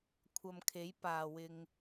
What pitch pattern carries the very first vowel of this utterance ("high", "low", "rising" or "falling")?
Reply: low